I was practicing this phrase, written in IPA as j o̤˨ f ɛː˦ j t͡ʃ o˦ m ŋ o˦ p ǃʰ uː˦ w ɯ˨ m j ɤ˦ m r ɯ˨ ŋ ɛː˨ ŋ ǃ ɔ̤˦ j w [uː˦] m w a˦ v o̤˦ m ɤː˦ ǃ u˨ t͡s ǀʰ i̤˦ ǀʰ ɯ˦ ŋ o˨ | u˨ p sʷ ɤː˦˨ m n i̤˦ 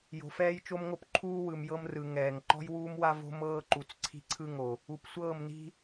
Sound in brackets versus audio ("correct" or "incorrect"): correct